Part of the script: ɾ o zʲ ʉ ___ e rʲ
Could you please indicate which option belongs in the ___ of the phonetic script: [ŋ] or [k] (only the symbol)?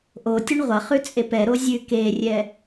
k